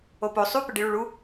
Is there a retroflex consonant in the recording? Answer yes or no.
yes